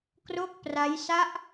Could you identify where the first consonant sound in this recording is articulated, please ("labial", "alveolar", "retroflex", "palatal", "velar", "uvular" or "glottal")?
velar